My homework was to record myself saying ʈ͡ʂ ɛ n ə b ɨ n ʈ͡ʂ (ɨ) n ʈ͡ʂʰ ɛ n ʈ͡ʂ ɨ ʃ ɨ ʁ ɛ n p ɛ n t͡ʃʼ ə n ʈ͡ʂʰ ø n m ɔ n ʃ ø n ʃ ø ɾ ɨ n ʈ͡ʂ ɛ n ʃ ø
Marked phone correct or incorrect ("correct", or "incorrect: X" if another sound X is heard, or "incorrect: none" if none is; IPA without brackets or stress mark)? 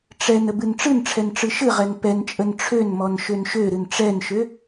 correct